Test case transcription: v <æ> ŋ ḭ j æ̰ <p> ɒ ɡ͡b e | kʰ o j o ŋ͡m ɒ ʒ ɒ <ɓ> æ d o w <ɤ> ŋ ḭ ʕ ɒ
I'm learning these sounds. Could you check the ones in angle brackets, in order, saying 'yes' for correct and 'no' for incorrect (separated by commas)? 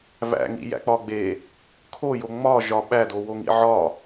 no, no, yes, no